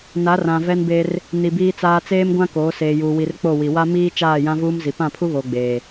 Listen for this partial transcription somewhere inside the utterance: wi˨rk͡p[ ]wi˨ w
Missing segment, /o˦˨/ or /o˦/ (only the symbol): o˦˨